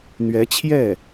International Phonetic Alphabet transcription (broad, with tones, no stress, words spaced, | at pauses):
n̪ɥɛ˧˥t͡ɕʰjɛ˥˩